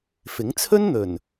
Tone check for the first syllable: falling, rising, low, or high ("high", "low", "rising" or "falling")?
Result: rising